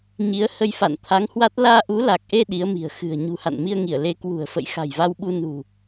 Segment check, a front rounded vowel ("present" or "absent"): absent